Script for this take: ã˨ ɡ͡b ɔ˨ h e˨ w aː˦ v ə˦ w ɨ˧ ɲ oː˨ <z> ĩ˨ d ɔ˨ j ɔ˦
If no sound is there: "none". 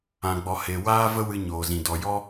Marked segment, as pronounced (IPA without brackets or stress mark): z